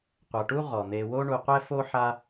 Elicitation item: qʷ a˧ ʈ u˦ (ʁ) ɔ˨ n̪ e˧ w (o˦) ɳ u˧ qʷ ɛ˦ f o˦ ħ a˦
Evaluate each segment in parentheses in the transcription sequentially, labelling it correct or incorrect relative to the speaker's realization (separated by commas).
correct, correct